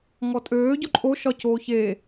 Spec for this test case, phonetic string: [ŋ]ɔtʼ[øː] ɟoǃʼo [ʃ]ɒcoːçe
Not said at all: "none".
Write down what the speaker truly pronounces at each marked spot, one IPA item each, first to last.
ŋ, øː, ʃ

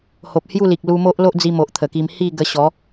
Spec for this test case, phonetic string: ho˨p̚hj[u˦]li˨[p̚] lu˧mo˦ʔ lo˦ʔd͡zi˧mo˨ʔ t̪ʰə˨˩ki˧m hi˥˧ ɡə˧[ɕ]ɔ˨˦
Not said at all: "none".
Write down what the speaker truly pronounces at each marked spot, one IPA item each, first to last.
u˥˧, k̚, ɕ

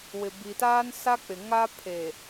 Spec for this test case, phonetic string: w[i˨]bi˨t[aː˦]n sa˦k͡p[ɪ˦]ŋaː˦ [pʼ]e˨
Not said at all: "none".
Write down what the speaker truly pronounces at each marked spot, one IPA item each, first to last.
ɪ˨, aː˦, ɪ˨, pʰ

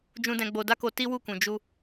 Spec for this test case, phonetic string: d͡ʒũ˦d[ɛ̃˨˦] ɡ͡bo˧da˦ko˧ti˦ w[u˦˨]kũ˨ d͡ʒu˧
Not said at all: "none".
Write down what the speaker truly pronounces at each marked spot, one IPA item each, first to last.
ɛ̃˦, u˦˨

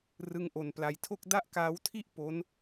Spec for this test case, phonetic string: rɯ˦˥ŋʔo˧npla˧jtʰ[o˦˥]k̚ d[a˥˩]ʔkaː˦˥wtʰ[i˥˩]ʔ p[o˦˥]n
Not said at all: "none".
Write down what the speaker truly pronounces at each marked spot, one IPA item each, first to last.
o˥˩, a˥˩, i˥˩, o˦˥

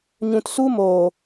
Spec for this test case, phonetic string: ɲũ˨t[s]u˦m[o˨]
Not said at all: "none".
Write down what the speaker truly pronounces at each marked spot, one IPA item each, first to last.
s, oː˨

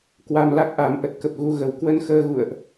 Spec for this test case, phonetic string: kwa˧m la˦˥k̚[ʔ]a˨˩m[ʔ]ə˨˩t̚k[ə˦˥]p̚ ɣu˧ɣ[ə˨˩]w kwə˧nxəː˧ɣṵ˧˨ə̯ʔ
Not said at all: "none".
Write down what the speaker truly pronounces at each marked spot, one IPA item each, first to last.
ʔ, ʔ, ə˨˩, ə˨˩

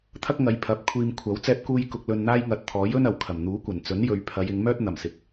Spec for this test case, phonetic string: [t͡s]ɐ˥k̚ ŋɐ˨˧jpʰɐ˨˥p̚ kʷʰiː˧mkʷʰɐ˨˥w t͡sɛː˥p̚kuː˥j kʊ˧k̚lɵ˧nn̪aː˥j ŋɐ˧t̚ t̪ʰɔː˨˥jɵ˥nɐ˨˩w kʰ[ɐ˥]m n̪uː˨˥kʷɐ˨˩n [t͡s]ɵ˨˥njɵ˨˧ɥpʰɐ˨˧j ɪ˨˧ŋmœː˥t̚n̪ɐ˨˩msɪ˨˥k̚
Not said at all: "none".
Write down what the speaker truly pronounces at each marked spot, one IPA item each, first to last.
t̪ʰ, ɐ˨˩, t͡s

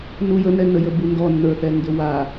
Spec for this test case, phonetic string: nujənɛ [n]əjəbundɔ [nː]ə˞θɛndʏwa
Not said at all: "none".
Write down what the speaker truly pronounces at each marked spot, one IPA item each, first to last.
n, nː

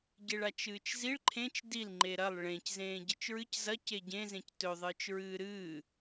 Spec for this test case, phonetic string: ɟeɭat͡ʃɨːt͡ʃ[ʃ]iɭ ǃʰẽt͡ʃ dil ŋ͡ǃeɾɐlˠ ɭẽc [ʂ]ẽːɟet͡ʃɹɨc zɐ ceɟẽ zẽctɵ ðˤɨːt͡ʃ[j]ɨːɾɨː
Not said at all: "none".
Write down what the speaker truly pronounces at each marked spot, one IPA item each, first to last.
z, z, ɹ

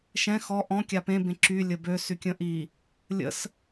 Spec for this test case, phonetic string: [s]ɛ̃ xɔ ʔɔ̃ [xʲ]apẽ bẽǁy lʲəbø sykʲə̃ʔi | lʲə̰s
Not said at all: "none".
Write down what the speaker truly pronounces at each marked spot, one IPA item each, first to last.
ʃ, kʲ

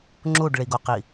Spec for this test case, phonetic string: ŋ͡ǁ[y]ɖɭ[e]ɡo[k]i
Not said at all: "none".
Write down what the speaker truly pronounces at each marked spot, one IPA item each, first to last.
u, i, q

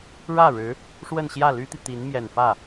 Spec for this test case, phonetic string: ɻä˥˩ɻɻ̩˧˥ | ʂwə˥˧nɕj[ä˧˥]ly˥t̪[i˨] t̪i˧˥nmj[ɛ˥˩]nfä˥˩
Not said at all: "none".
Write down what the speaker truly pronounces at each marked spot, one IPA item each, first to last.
ä˥˩, i˨, ɛ˨˩

